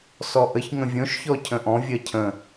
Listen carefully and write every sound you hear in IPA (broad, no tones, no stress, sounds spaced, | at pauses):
s ɔ ʔ ə ç ŋ ə̃ vʲ õ ʃ ç ɔ cʰ ə̃ ʔ ɔ̃ vʲ ɜ cʰ ə̃